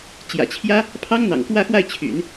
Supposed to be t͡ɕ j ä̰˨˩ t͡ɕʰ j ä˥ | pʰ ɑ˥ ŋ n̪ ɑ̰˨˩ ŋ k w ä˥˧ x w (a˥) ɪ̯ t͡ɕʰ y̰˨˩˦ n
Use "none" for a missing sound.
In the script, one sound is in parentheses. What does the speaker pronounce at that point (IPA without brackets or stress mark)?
a˥˩